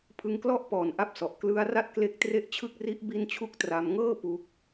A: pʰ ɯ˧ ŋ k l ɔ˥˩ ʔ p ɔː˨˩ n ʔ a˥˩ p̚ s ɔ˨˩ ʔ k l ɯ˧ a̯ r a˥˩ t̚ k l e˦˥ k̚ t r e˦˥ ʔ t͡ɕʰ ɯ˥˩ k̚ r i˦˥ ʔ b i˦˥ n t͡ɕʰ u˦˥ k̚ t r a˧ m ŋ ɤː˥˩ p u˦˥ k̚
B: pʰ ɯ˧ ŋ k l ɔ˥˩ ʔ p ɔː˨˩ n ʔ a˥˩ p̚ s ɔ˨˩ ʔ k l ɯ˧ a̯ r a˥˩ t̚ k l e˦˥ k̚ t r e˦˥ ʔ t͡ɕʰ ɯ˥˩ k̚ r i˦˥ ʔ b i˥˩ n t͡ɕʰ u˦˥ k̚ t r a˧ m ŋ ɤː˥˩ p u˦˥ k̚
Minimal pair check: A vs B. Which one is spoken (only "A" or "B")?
A